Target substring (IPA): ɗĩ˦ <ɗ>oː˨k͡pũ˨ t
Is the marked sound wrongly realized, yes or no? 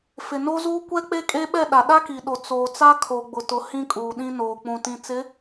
yes